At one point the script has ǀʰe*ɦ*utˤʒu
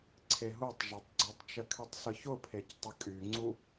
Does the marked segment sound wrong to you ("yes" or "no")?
no